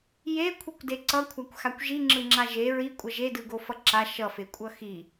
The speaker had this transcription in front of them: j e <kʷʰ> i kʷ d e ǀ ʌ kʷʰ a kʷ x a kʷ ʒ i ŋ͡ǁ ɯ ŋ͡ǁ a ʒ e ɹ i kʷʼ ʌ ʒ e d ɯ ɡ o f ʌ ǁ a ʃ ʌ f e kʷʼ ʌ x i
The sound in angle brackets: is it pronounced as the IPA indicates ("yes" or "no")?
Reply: yes